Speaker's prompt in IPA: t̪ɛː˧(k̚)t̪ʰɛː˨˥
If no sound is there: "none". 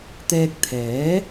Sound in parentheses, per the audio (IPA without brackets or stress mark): k̚